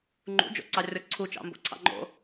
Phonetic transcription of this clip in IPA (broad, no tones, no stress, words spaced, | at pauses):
ŋ͡ǃṵd͡ʒo̰ǀɑrʲɔ ǀʰut͡ʃɑ̰mbo̰ǀʰɑ̰ ŋ͡ǃo̰